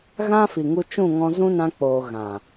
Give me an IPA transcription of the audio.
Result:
ɣ ã˦ f i˨ ŋ u˧ t͡ʃ ũ˦˨ ŋ ɔ̃˧ z ũ˦ n ã˧ k͡p oː˨ ɣ ã˨

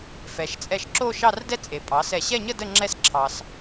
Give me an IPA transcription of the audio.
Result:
f ɛ˩˧ ʃ t͡sʼ ɛ˧ ʃ ǁ o˥˧ ʃ ɑ˥˧ r d ɛ˥ t͡sʼ e˩˧ pʼ ɑ˩˧ s ɛ˧˩ ɕ ɛ˥˧ ɲ ə˥˧ d ə˥˧ ŋ͡ǁ ɛ˥ s ǁʰ ɑ˧ s

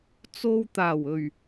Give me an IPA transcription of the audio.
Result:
t͡s o˧ w t̪ aː˨˩ w ɵ˨˩ ɥ

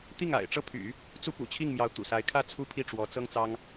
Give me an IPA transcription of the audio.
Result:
t̪ i˥˩ ŋ a̰˨˩ ɪ̯ ʈ͡ʂ ɤ˥˩ pʰ y̰˨˩˦ | t͡s u˥ p ṵ˨˩ t͡ɕʰ i˥˩ ŋ m j ɑ˧˥ ʊ̯ t̪ ṵ˨˩ s a˧˥ ɪ̯ kʰ ä˥˩ t͡sʰ u˥ pʰ i˥˩ ʈ͡ʂ w ɔ˧˥ t͡s ɤ˥ ŋ t͡s ɑ˥ ŋ

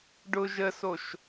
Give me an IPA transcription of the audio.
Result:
ɖ ʊ ʒ ə s o ʃ

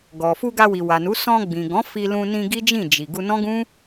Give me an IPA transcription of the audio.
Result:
ɡ ɔ˨ f u˧ ɡ a˧ w i˨ w a˨ n u˨˦ s ɔ̃˧ ɡ͡b ĩ˨ ɡ ɔ̃˨˦ f i˧ l ũ˧ n ĩ˧ ɡ i˦ d͡ʒ ĩ˦˨ d͡ʒ i˨ ɡ u˧ n ɔ̃˦ ɡ ũ˦

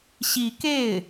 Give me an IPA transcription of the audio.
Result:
ɕ i˧˥ k e˥˩ ɪ̯

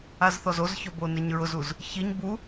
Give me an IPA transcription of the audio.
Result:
a z θ ɔ z o z ç ɔ b o n e ɲ ɹ ʊ z u z | ç i ɲ b u

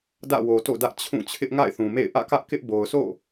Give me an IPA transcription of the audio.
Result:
d ä̰˦˨ w o˨ t o̰˦˨ d ä˦ ʔ t͡ɕʰ ũ˦˨ t͡ɕʰ ɪ˦ ʔ ŋ a̰˦˨ ɪ̯ θ ũ˨ m ḛ˦˨ ɪ̯ ʔ ä̰˦˨ k ä˦ ʔ k ɪ˦ ʔ b o˨ ʊ̯ sʰ o̰˦˨

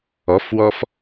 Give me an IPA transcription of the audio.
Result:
ɔ f w ɔ f

